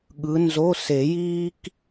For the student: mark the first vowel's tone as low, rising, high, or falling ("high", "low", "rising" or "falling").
rising